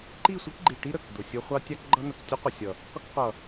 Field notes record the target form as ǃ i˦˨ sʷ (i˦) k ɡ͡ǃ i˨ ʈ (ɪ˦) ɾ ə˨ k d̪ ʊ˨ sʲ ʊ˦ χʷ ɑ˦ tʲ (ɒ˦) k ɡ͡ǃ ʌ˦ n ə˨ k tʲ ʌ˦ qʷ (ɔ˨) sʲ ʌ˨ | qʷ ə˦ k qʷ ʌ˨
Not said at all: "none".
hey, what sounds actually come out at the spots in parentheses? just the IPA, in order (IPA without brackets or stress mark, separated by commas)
i˦, i˦, ɑ˦, ʌ˨